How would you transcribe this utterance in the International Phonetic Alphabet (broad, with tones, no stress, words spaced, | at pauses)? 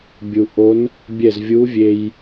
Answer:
bʲu˩ ʔo˧˥n | bʲɛ˧˩z vʲu˧˥vʲe˧j